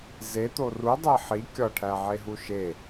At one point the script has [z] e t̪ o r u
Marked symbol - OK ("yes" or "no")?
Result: yes